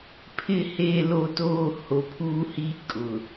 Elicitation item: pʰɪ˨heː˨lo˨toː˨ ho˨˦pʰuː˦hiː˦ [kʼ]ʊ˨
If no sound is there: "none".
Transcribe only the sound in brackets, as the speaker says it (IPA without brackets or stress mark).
kʼ